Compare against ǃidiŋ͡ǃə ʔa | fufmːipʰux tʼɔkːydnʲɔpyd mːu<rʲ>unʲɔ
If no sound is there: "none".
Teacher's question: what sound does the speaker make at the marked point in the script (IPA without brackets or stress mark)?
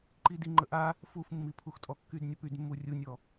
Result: rʲ